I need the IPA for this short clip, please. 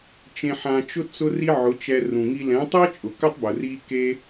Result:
t͡ʃẽ˧ħã˧t͡ʃʊ˦ t͡sʊ˦ri˦ʕʊ˨˦t͡ʃɛ˧ rũ˨ŋi˧ lɛ̃˨˦tˤɛ˦ t͡ʃʼʊ˨kʏ˦tˤbʊ˨ ri˦ke˦

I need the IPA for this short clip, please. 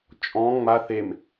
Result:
t͡ʃʼɔ̃ ŋ͡ma θem

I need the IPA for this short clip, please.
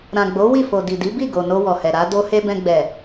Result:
ɾã˨ɡ͡bo˨˦ wi˦˨fo˨ di˨di˨˦bi˦˨ ɡo˨ no˧wɔ˨hɛ˨ ɾa˨˦ do˦ he˧bɛ̃˧ɡ͡bɛ˨

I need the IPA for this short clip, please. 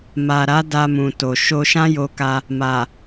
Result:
ma˨ɾa˨˦ da˧mũ˨to˨ ʃo˧ʃã˦jo˧ka˧ | ma˨

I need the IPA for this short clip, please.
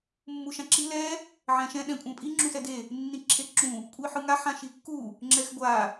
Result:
mːuʃãǁil ɛ | ʕɛ̃ʃɛ̃ ɗɛ̃kʷʼɛ̃pʼi ŋ͡ǁũsɛde | nːĩǁʰeǁũ | kʷʼiħɯŋa ħãʃikːu | ŋ͡ǁɛxɡʷa

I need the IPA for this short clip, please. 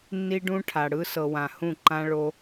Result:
nːi˦ɖũ˦ʈʰa˨ɽɯ˦ sɤ˨wã˨hũ˦˨ ǃã˦ɭo˦

